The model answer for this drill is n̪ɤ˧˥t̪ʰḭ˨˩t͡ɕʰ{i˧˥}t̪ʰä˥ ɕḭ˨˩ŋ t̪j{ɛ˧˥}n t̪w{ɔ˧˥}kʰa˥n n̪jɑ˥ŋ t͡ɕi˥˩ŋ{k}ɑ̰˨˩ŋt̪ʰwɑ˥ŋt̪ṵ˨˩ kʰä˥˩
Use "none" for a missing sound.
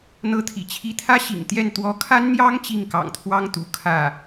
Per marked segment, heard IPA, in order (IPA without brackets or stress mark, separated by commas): i˧˥, ɛ˥˩, ɔ˧˥, k